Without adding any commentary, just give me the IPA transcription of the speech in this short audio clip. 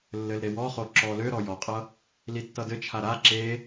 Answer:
lː ɘ l ɾ e w ɔ χ o ǁ ɔ l ø ɾ ɔ j ɔ qʼ ʌ | l i tː ʌ d ɘ t͡ʃʰ a ɾ a ǁ e

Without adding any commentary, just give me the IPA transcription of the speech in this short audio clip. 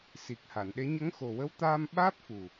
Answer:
s i˨˩ k̚ h a˨˩˨ n ɗ e˧˥ ɲ ə˧˥ ŋ x o˨˩ w ə˧˥ w t̪ aː˧ m ɓ aː˦˥ p̚ f u˨˩

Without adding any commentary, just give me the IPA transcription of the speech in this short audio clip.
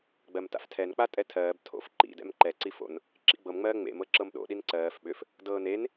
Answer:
ɡ͡b ɜ m t a̰ f tʰ ɛ n k͡p a tʼ ɛ tʰ ɜː b tʰ o̰ f ǃ ḭ d ɛ̰ m ǃ ɛ ǀ i f o̰ n | ǁ ḭ ɡ͡b ɤ m ŋ͡m ɜː ŋ͡m ḛ m ɤ ǁ ɤ m ɗ o̰ ɗ i n ǀ ɜː f ɓ ʏ f | d ɤː n e n

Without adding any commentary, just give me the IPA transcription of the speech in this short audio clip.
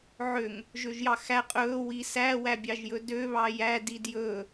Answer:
ʕ ø ŋ | ʒ ø ʒ j ɑ x æ qʼ ɵː w i s æː w æ bʲ ɑ ʒ j ɵ d ø β ɑ j æ d i d j ɵː

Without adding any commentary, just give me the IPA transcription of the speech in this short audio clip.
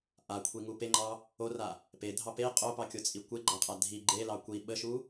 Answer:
ʔ a kʷʰ i ŋ u p e ŋ͡ǃ ɑ | o r a | p e dʱ ɑ p e qʼ o p ɑ kʲ o t͡sʼ i kʷ e ɡ͡ǃ a qʼ a dʱ i ɡ͡ǃ e l ɑ kʷ i ɓ ə ʃ u

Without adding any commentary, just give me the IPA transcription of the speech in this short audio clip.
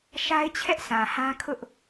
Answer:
ʃ a˦ ɪ̯ t͡ɕʰ ɛ˦ ʔ sʰ ã˨ h ã˦ kʰ ʊ˦ ʔ

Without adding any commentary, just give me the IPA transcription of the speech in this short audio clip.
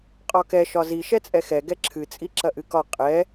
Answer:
qʼ ɒ k ɛ ʃ ɒ z i ʃ ɛ t͡sʼ ɛ x ɛ ɡ ɛ ǁʰ ɨ t͡sʼ i ǁ ɐ ʔ ɨ k ɒ qʼ ɛ

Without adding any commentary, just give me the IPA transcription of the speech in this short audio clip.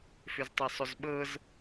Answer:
f ʏ z tˤ ɤ sˤ ʏ z ɓ ɤ z

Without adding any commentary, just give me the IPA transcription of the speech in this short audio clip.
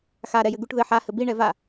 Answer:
x a ɾ ɛ j ɘ ɡ u ʈ ð ɘ ħ a h ɘ b i ɳ ɛ v a

